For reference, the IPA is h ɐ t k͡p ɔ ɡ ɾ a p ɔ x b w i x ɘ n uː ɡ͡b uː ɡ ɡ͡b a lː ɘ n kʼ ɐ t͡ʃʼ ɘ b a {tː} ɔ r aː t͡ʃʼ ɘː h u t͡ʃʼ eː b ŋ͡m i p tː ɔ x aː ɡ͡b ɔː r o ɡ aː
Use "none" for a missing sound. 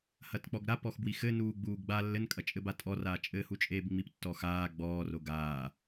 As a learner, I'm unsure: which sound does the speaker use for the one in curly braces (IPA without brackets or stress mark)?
tʼ